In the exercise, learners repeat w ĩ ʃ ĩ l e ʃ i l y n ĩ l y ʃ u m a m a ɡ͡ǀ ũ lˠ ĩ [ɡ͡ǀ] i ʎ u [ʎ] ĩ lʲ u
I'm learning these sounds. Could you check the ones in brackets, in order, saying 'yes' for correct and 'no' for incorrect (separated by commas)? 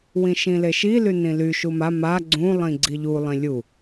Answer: yes, no